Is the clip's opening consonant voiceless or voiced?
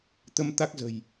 voiceless